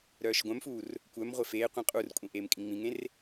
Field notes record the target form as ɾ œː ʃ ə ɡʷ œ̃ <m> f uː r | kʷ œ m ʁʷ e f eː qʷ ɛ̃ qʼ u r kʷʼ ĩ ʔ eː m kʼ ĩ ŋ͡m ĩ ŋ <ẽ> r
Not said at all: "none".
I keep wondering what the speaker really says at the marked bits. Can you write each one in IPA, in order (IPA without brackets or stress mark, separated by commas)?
m, ẽ